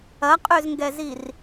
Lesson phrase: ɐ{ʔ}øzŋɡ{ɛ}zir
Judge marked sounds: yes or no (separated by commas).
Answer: no, yes